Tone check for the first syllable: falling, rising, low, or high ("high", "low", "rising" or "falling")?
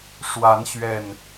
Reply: rising